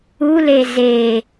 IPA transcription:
ule ze

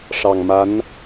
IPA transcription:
ʂɑ˨˩ŋma˧˥n

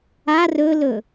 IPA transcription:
a rɵlɵ

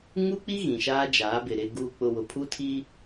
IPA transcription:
ŋu˦k͡pi˦ ɣĩ˨ʃaː˦d͡ʒaː˨˦bɪ˨ ɾɪ˨ɡuː˨k͡pʊ˨ wʊ˨pʰu˦tʰiː˦

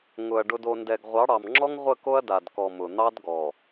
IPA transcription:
ŋʊ˨ɐ̯ ɖʊ˨do˨ndɛ˨ɡ ʁʷɑ˨˦ɽɑ˨mŋ͡ǁɔ˦ŋ ʁʷə˦˨ko˦ɐ̯da˨dkɔ˨ mʊ˨ n̪ɑ˦d ɡɔ˨

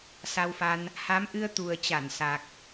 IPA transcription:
sa˧wfa˧n | ha˨˦mʔɨ˧ə̯ t̪u˨˩ə̯t͡ɕa˧˩n sa˨˩k̚

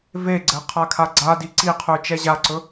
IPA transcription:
veɡ͡ǀɘ qʰakʰaɡ͡ǀadi ǀiqʰʉ t͡ʃɛʑaǀɵ

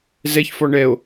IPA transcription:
zɛçfɔ ɳɛo̯

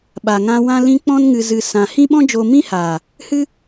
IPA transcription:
ɓa˨ŋã˧ wã˦lĩ˦ k͡pɔ̃˦nŋɨ˧zɨ˧ sã˧ hĩ˦ɓɔ̃˦d͡ʒoː˧ mĩ˦haː˨ | hɨ˦

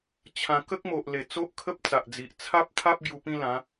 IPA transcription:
t͡ɕʰã˧ kə˦k̚mo˨ʔle˨˩ t͡so˦ʔkʰə˦p̚t͡sa˨ʔd͡zi˨ʔ t͡sʰa˦p̚t̪ʰa˦p̚ ɡju˧pĩ˦lã˨˦

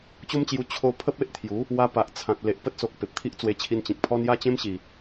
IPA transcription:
t͡ɕo˦mt͡ɕju˧ t͡ɕʰo˧ pʰə˦p̚e˦ʔt̪ʰju˨˦ | wa˧pa˨ʔ t͡sʰã˨t̚ le˨ʔpə˦t̚so˨k̚ pe˨p̚t̪ʰi˦ʔt͡swe˧t͡ɕʰi˧n t͡ɕĩ˨k̚pʰɔ˦n ja˦t͡ɕẽ˦mɕi˨˩

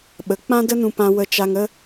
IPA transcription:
ɓə˨ k͡pã˦də˦nũ˧pã˧ wə˧t͡ʃa˧ŋə˦

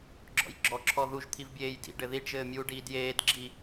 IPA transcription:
ɡ͡ǁɔ̰jɡ͡ǁɔ ǁʰɔðuʒ t̪ʰivbʲeːjdḭ ɖɘðiɖ ʒɘːmʲuːɖiːdjeːd ɡ͡ǁi

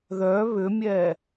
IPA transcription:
ðœ βʏmʲɛ

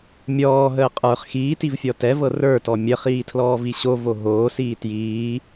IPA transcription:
mʲɔːɦəː qʼə˞χ xiːtivfʲɔ tɛvɤ rə˞tɔ mʲəχiːtʰlɔːvi ɕovo ɦoːsiː tjiː

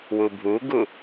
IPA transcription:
wubʱuɡu

